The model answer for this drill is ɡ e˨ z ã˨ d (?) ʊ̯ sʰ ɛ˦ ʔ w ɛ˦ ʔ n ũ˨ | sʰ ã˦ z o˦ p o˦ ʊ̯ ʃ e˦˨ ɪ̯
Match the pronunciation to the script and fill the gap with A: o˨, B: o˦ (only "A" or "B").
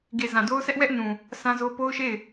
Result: B